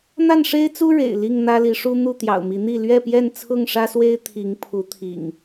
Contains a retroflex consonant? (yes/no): yes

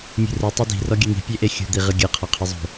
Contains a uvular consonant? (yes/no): yes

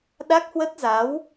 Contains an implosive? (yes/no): yes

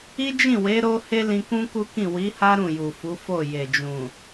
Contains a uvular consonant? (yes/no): no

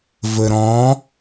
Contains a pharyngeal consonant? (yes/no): no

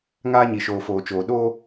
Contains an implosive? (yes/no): yes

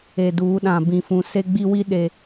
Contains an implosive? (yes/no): yes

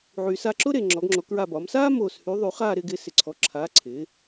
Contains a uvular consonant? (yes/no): yes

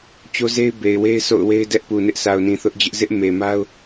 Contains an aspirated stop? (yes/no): no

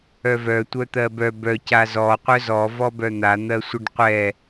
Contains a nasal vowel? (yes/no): no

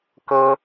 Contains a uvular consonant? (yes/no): no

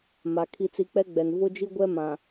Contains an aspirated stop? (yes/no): yes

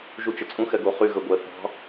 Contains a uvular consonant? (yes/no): yes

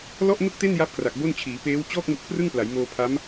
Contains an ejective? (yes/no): no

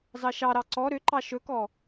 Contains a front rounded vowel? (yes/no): yes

